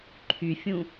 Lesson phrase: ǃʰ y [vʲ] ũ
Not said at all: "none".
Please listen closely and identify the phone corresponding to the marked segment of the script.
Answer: fʲ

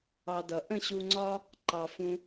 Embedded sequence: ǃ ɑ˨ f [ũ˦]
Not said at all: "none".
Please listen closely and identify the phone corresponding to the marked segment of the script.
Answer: ũ˧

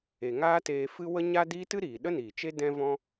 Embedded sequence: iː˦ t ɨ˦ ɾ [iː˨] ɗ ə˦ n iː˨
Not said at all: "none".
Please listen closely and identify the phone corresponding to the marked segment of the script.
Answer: iː˨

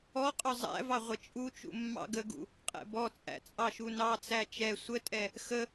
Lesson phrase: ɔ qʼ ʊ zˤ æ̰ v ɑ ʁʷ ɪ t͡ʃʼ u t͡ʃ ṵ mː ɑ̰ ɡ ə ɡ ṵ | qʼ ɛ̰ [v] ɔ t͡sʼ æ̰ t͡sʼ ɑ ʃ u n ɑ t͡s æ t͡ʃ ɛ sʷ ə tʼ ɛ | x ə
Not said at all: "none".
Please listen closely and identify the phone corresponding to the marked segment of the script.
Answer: b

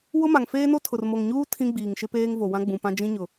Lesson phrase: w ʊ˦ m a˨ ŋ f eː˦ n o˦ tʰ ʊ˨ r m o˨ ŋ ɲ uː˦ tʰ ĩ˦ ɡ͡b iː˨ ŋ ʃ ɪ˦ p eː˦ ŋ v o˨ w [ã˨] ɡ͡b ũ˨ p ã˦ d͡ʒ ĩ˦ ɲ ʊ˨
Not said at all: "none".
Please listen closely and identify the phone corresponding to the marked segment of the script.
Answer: ã˦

